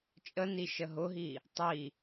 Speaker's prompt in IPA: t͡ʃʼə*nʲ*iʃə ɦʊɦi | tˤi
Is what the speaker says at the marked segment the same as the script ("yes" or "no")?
no